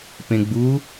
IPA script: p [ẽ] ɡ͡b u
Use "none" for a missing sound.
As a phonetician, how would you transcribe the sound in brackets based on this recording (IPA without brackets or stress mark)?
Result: ẽ